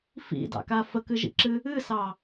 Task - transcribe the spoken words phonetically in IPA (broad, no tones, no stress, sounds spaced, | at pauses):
f ḭ d ɑ̰ k a f ə k ɨ ʒ ḭ ǁ ɨ | ɨ s ɑ